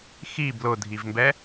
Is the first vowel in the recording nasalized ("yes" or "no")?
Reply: no